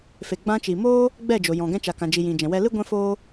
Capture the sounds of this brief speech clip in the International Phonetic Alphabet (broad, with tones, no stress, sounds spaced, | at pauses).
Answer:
f e˨ ɡ͡b ã˧ t͡ʃ i˨ m oː˦ | ɡ͡b ɛ˦˨ d͡ʒ o˨ j ɔ̃˨ ɡ ɛ̃˧ t͡ʃ a˨ k ã˨ d͡ʒ i˨ j ĩ˨ d͡ʒ ɛ̃˨ w ɛ˧ l ɨ˦ ɡʷ ɛ̃˦ f oː˦